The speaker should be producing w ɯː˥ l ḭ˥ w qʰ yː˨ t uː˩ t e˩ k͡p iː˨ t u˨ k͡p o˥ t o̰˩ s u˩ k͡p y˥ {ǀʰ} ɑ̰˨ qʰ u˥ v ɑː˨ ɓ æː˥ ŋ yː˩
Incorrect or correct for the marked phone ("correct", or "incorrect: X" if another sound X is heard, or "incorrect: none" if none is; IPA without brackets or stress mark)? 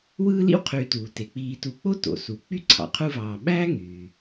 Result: correct